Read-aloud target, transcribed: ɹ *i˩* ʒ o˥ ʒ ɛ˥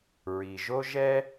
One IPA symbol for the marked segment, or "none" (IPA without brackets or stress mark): i˩